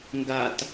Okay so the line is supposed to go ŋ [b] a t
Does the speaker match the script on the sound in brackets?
no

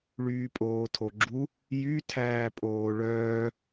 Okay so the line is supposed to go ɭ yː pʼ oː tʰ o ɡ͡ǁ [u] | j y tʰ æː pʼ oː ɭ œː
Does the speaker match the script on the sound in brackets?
yes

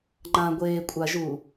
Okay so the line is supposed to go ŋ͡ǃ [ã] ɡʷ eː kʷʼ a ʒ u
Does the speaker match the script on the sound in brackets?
yes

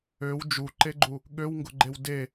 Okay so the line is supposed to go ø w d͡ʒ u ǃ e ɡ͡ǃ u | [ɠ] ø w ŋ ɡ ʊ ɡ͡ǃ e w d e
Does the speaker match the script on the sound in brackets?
yes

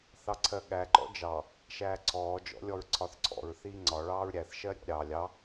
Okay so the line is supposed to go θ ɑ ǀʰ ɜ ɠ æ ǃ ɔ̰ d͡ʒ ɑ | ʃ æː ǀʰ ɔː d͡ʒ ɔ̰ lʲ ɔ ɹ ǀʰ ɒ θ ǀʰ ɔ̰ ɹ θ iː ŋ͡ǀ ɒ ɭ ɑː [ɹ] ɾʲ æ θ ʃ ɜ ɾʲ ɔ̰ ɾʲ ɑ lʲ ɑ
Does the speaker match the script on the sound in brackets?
yes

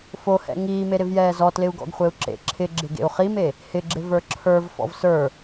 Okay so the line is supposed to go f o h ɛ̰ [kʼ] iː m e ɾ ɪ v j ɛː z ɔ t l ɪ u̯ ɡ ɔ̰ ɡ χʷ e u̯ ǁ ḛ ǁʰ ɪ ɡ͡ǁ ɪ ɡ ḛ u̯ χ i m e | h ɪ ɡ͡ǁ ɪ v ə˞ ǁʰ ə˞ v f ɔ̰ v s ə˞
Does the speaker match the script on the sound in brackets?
no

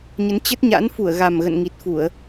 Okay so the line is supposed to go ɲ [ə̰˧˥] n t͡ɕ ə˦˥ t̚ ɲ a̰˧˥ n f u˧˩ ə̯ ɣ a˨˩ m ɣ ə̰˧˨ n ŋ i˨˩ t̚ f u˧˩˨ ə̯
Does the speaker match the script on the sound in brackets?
no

